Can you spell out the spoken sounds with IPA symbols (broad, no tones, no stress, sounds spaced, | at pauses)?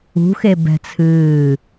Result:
ṳ x e b ɛ̤ t͡sʰ ɨː